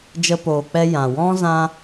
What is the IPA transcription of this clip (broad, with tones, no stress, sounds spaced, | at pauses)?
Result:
d͡ʒ ə˧ p oː˨ k͡p ɛ˧ j ã˨ w ɔ̃˦ z ã˧